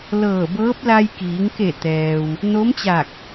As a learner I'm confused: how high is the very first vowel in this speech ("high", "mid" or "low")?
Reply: mid